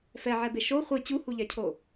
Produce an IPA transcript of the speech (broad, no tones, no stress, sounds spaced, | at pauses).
f ɛ ʕ ɛ b e ʃ o χʷ ɯ t͡ɕ u h u ʎ ɛ cʰ o